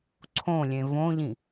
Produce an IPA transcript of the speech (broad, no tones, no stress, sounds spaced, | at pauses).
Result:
ǀʰ õ lʲ ẽ v õ ʎ ĩ